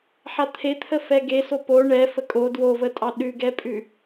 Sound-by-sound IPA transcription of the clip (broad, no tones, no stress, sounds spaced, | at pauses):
ħ a t̪ʰ e t̪ʰ ə f ɛ ɡ e s o p o ɳ ɛ f ə kʼ o d w o v ə tʼ ɑ ɗ ʉ ɡ ɛ pʼ ʉ